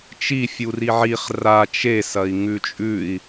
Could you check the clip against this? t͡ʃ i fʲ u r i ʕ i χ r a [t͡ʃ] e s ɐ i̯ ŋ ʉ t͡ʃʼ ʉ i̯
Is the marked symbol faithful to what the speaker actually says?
yes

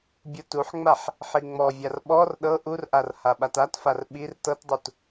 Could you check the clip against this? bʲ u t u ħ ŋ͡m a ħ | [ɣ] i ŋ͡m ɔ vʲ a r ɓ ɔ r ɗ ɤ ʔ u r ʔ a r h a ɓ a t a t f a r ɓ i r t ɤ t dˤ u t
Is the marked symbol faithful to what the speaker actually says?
no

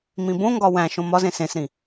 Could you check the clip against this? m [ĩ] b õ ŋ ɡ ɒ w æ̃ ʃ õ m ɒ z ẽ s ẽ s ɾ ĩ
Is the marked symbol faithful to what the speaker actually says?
yes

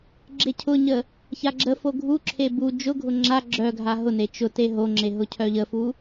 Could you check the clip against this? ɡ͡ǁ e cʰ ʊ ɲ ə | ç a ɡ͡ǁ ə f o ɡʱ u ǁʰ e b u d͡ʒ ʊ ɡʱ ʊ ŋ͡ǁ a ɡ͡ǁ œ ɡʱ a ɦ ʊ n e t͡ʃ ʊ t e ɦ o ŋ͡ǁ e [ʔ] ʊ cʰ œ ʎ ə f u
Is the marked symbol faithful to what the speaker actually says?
no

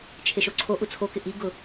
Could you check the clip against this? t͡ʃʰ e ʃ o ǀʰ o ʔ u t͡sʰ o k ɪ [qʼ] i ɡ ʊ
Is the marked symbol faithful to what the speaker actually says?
no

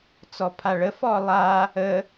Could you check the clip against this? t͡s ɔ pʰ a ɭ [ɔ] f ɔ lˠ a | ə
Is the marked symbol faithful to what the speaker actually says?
no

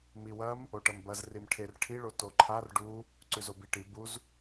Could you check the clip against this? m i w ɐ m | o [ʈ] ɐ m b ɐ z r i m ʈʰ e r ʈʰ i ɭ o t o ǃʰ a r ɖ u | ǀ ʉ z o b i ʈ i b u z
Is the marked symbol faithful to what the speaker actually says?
yes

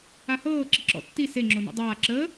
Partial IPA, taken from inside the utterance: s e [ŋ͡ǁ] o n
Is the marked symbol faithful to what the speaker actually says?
yes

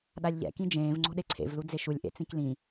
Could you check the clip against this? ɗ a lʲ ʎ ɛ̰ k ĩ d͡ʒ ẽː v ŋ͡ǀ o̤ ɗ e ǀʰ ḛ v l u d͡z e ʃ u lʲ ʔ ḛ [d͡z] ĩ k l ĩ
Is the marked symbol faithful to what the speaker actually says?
no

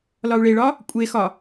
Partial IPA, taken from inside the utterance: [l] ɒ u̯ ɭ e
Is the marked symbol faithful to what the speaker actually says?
yes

